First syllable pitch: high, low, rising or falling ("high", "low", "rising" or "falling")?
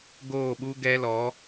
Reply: falling